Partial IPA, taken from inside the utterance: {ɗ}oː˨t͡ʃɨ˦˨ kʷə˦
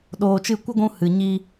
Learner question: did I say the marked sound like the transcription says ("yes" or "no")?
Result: yes